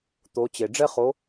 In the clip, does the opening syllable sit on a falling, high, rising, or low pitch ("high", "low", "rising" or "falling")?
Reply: rising